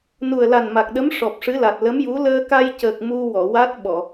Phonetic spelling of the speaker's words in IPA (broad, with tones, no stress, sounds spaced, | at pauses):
n u˨˩ ə̯ l a˨˩ n m a˨˩ k̚ ɗ ə˧˥ m ʂ ɔ˨˩ p̚ ʂ ɨ˧˥ l a˨˩ t̚ l ə˧˥ m j u˧˥ l əː˧ k a˧ j c əː˨˩ k̚ m u˧ w ɔ˨˩˨ w a˦˥ t̚ ɓ ɔ˨˩˨